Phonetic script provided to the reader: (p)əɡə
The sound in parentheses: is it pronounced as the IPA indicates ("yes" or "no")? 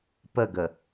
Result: yes